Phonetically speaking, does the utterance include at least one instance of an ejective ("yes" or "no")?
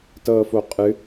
yes